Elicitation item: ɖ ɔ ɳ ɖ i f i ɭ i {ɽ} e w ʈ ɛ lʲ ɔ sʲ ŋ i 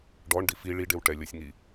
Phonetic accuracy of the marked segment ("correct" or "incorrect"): incorrect